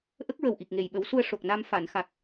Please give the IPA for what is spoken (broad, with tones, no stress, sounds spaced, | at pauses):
ʔ ə˦˥ k̚ ɹ ə˨˩ w ʔ i˨˩ k̚ ŋ e˨˩ j ɓ ə˨˩˦ w s u˧ ə̯ ʂ o˨˩ k̚ n a˧ m f a˨˩˨ n x a˨˩ k̚